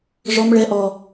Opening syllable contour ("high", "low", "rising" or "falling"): high